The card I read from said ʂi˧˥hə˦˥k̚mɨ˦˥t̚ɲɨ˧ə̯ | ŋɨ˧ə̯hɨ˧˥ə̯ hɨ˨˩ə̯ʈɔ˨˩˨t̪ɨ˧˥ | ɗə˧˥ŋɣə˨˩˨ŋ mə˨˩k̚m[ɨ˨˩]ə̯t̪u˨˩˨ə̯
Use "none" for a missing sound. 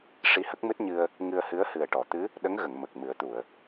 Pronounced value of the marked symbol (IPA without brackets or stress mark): ɨ˨˩˦